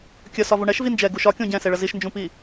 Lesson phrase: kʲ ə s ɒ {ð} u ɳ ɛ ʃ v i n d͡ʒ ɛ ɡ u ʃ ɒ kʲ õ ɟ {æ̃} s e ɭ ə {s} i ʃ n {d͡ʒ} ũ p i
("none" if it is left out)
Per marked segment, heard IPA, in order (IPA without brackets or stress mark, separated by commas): v, ɛ̃, z, d͡ʒ